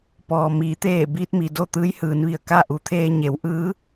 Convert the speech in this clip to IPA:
pɔː˩miː˩˧ t̪eː˧˩ biː˧t̚mi˩ do˥˨t̪ɯː˧˥jhɯː˩˧nʋi˧˩ə̯ ka˥˨ ʔu˩˧t̪ʰeː˧ ɲe˩˧wʔɯː˧˥

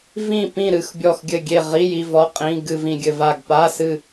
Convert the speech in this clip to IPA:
vĩ˦˨pĩ˦˨ ɾɨ˦˨x bʲɔ˦˨xɡʲɘ˦˨ɡʲe˦˨ ʁi˧˥˧ ji˧˥˧vɔ˧˥˧qʼĩ˧˥˧ ɡɨ˦˨vĩ˦˨ɡʲɘ˦˨va˦˨ɡ pa˧˥˧sɨ˦˨

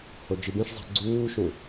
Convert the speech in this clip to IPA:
hod͡ʒibẽʃzˤɛ̤ ɡ͡ǀuːʃũ

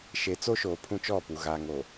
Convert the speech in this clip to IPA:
ʃe˨˦ t͡so˦ʃoː˨ pʰũ˦t͡ʃɔ˦˨pu˨ ɣaː˨ŋo˨

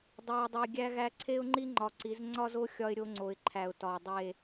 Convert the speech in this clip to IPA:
dˤu˨ɪ̯dˤi˨ ɡʲæ˦ɣæ˦ ǀʰe˦ʊ̯ŋ͡ǃi˦ ŋ͡ǃɒ˨ǀi˨˦z ŋ͡ǀɒ˦zo˦ xʲɒ˦ɪ̯ɾʲo˦ŋ͡ǀo˨ɪ̯ ǃʰæ˨ʊ̯tɒ˨ʊ̯dˤe˦˨

